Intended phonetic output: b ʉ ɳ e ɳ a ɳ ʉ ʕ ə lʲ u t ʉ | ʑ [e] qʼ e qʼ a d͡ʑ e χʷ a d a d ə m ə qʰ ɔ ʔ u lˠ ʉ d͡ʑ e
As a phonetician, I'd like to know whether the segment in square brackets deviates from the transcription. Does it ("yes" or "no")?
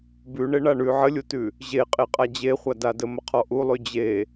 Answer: no